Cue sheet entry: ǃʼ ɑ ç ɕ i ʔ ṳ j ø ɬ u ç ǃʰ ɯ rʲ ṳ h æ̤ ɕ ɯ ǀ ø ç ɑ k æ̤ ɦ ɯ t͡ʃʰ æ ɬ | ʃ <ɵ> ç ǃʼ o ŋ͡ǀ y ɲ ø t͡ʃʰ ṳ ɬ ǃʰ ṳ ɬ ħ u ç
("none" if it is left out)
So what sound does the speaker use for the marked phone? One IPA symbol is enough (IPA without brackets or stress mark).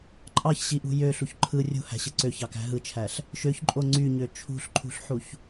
ø